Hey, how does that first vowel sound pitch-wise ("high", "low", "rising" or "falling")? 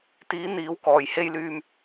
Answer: rising